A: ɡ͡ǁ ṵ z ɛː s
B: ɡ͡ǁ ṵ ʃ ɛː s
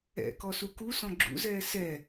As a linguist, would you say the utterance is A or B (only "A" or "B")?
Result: A